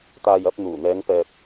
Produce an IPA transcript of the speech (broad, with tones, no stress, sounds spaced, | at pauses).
t̪ aː˨ j ɐ˧ p̚ n̪ uː˨˩ n̪ ɛː˨˧ ŋ p ɛː˨ p̚